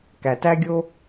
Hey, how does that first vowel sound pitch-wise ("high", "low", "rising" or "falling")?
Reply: low